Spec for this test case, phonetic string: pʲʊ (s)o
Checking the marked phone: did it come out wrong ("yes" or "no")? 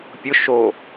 yes